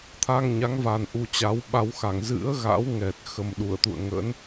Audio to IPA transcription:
t̪ʰ a˧ ŋ ɲ a˨˦ ŋ v a˨˩ n ʔ u˧ t͡ɕ a˨˦ w ɓ a˧ w x a˧˩ ŋ z ɨ̰˧˥ ə̯ ɣ a̰˧˥ w ŋ ɛ˨˩ t̚ x ə˨˩ m ɗ u˧˩ ə̯ t̪ ṵ˧˨ ə̯ ŋ ə̰˧˥ n

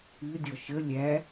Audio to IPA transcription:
ɨ dʲ ɔ ʃ ə lʲ æ

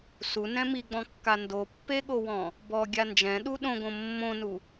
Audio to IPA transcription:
s u n ɛ̃ m i ɡ͡b ɔ̃ kː a n d o pː e ɠ o w ɔ̃ | b ɔ ɡʲ a n d͡ʒ ɛ̃ ɗ u ɗ õ ɡ õ mː õ n u

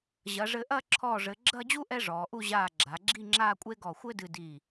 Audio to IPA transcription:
ʑ ɐ˩˧ ʐ ɘ˧ ʔ ɐ˥˧ ǁʰ ɔː˧˩ ʐ ɘ˩˧ ɡ͡ǁ ɐ˥˧ d͡ʑ u˥ ʔ ɛ˥ ʐ ɔː˩˧ ʔ u˥˧ ʑ aː˧˩ ɡ͡ǁ a˩˧ ɡ͡ǁ i˥˧ ŋ͡ǁ aː˥˧ kʷʼ e˥ ɡ ɔ˧˩ xʷ ɘ˥ d ɨ˧ d i˧˩

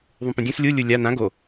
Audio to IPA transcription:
ðˤ ũ p ũ dʲ ũ s lʲ u lʲ u lʲ a n ã ɡ o

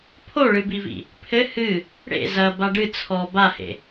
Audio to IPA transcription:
pʰ o ɭ ɨ b i v ḭ | pʰ ɘ h ɨ | ɽ ḛ z ɐ b a ɖ ɨ t͡sʰ ɔ b a h ḛ

